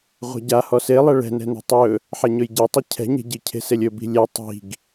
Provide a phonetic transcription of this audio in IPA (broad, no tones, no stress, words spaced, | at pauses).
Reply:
ʁʷɛ̤ɟa hɔselˠɛ ɭɛ̤nɛ̤ne̤ tˤɵ | ħɛɲɵjɟi tˤɛcʰɛ̤ɲe̤ ɟi cʰe̤selʲɵ bi̤lʲe tˤi̤ɡ